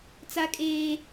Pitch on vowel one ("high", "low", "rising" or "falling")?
high